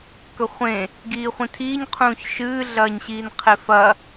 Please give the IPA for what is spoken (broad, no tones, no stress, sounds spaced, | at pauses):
k ɵ χʷ ẽ | ɡ iː χʷ ĩ tʰ iː ɲ qʰ ũː ç ʃ ɨː ɮ ɐː ɲ ɕ iː n qʰ e f ɐ